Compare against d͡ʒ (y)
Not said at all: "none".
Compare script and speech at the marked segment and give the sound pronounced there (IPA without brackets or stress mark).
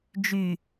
y